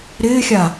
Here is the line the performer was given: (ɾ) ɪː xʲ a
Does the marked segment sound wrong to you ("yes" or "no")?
no